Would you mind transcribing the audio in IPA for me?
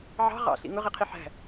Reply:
ʕ ɑ̤ ʁ ɑ̰ ɬ ḭ ŋ ʊ ʁ i qʰ i ħ æ̤

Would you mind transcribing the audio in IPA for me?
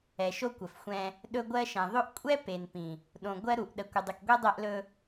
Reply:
ɛ˨ ʃ o˦ kʷ ə˨ f xʷ ɛ̃˦ | ɗ ɵ˦ ɡʷ ɜ˦ ʃ ɛ̃˨ ðˤ ɵ˦ ʔ kʷʼ ɛ˦ p e˨ n p ĩ˨ | ɗ õ˨ ɡʷ ɜ˦ ɾ u˨ ʔ ɗ ə˨ kʷ ə˨ dˤ ɨ˨ k ɡʷ ɛ˦ dˤ ɛ˦ ʔ l ɵ˦

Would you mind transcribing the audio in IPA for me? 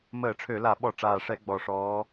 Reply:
m əː˧˩˧ ʈ͡ʂʰ ø˧˩˧ l a˧˩˧ ɓ ɔ˧˩˧ ʈ͡ʂ aː˨˩ ʂ ɛ˧˩˧ ɡ͡b ɔ˨˩ ʂ ɔː˨˦

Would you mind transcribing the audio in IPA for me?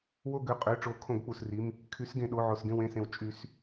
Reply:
w o˦˨ ɡ ø˩˧˩ qʼ ø˩˧˩ ʈ͡ʂ o˨˩˦ kʰ õ˨˩˦ ɡ k͡p u˩ s r i˩˧˩ m | kʰ y˨˩˦ s ɡ ẽ˩ ɗ o˩˧˩ ʕ o˩ s ɡ ẽ˦˨ w ẽ˦˨ s ẽ˩ w t͡ʃʼ y˨˩˦ s

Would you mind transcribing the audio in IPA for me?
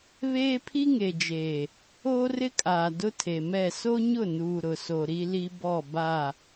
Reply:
β eː˦ pʰ i˦ ŋ e˨ d͡ʒ eː˨ | oː˦ r ɪ˦ kʼ aː˨ d ʊ˦ tʰ e˨ m ɛ˦˨ s o˦ ɲ ʊ˦˨ n uː˨ ɾ ʊ˨ s o˨ ɾ i˦ l i˦ b ɔ˦˨ b a˦˨

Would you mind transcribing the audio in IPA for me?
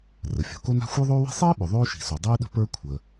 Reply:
r ə˩ fʲ o̤˩ k o˥ n a̤˥ xʷ ə˞˥ ðˤ oː˥ w i̤˥ sˤ iː˥ ɓ ʏ˩ ðˤ oː˥ ʃ i̤˩ s o˩ dˤ iː˥ ɗ ə̤˥ p ə˞˥ kʷʰ əː˩

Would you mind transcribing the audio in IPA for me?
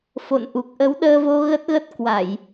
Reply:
f o̰˧˨ n ʔ u˨˩ k̚ ʔ ə˨˦ w ɗ əː˧ v o˧ ɣ ə˦˥ t̚ ɣ ə˦˥ t̚ k w a˧˩˨ j

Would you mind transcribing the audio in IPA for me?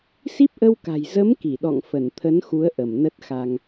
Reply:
s i˦˥ p̚ ʔ ə˧ w k a̤˨˩ j z ə˨˦ m k i˧˩ ɗ ɔ̰˧˨ ŋ f ə˧˩ n t̪ʰ ə˨˦ n x u˨˦ ə̯ ʔ ə˧˩ m n ə˦˥ t̚ x a˧ ŋ

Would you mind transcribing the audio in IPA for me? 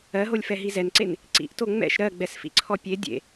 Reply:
ɜ ɦ o lʲ f ɛ ɦ i z ɛ n ǀ e n | ǀ ḭ ʔ t o ŋ͡m ɛ̰ ʃ ɾ ɜ ɡ͡b ɛ s f ḭ ǀʰ ɔ pʲ e dʲ ḛ

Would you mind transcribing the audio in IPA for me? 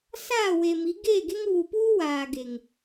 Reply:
s aː˦˨ w e˨ m i˨˦ ɡ e˦˨ ɡ e˦ ŋ β u˨ p uː˦ w aː˨ ɡ e˨ ŋ

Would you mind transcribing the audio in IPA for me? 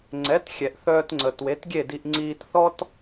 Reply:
ŋ͡ǀ ɛ˩˥ t xʲ ɛ˩ ʔ θ œː˧ t ŋ͡ǀ ə˩ t w e˩˥ t ɡʲ e˥˩ d i˧ ʔ ŋ͡ǀ iː˧ t θ ɔ˥ t

